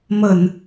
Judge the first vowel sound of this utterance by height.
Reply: mid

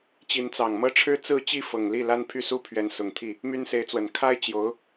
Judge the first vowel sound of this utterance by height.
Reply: high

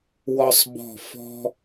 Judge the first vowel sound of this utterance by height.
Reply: mid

